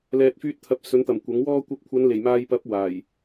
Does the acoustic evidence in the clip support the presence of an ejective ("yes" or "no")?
no